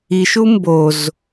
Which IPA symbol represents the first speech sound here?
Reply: i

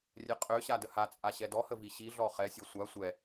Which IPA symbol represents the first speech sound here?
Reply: rʲ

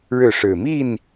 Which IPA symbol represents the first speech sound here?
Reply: ɻ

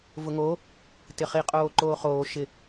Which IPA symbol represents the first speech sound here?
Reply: v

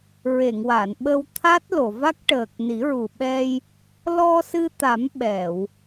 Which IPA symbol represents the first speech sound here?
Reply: ɹ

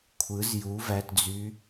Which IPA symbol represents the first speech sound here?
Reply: kʷʰ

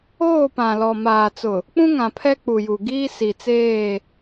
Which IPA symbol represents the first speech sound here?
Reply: oː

